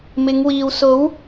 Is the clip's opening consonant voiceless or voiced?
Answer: voiced